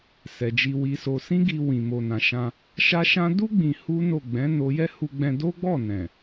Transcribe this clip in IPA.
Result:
s ɛ˨ d͡ʒ i˧ w i˧ s o˧ s ĩ˦ ɡ i˧ w ĩ˨ m o˨ n ã˨ ʃ ã˧ | ʃ a˦ ʃ ã˦ d u˦ ɡ͡b ĩ˧ h u˦ n o˦˨ ɡ͡b ɛ̃˨˦ n o˧ j ɛ˦ h u˧ ɡ͡b ɛ̃˧ d o˦ ɡ͡b ɔ˦˨ n ɛ̃˨

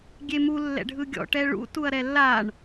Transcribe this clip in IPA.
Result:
ɡʲ e m u lː ɛ̰ ɖʱ ɯ ɡʲ ɔ̰ ʈ ɛ ɭ ṵ t u ɐ̯ ɾ ɛ lː a ɳ

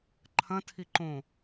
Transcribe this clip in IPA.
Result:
ǃʰ ɐ̃ tʰ i ǃ õ

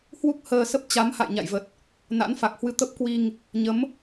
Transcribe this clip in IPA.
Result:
h w u˦˥ k̚ h əː˧ s ə˦˥ p̚ t͡ɕ a˨˦ m h a̰˧˨ j ɲ a̰˧˨ j v ə˨˩ t̚ | n a̰˧˥ n f a˨˩ k̚ h w ɨ˧ t̪ ə˦˥ p̚ k w i˧ ŋ | ɲ ə˨˦ m

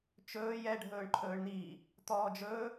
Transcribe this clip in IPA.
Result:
t͡ʃ ɵː j ɛ ɖʱ ɵː ɳ ǃʰ ɵː ɳ n̪ iː | t̪ ɔː d͡ʒ ɵː

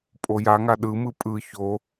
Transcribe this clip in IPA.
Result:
pʼ o j a ŋ a ɗ ɯ m ɯ pʼ ɯ ç o

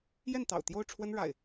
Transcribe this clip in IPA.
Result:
j ɛ˥˨ n t̪ ɑ̰˨˩ ʊ̯ t̪ j o˥˨ ʊ̯ ʈ͡ʂʰ w ə˦ n ɻ a̰˨˩ ɪ̯

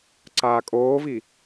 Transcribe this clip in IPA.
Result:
ǀ aː kʼ oː v i

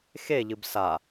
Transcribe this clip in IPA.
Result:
x e ʎ ɨ b s a

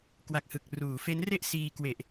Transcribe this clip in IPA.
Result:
k w a˨˩ k̚ h ɯ˨˩ k̚ r uː˩˦ f e˦˥ n r e˥˩ ʔ s iː˧ k w e˨˩ ʔ

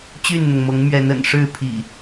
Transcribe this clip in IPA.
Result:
t͡ɕ y˥˨ n n̪ ʊ˩ ŋ m ɤ˨˦ ŋ m ɥ ɛ˨˦ n ə̰˨˩ n ʂ ɻ̩˥˨ pʰ ḭ˨˩

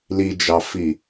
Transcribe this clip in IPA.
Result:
l i d͡ʒ ɑ f i

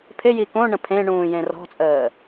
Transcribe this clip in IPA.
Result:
pʰ ɪ j i k õ ɳ ə̃ pʰ ẽ ɳ ũː j ẽ r ɔ̤ t͡sʼ əː

